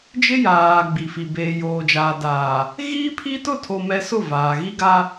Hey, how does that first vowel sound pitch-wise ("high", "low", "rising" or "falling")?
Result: high